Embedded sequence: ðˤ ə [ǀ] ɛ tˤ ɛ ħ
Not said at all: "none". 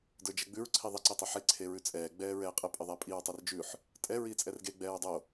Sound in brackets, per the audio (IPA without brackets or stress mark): ǀ